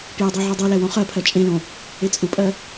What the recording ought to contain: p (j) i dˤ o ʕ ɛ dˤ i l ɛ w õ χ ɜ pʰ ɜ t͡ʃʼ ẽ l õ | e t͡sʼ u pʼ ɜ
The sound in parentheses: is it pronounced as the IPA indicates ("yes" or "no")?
yes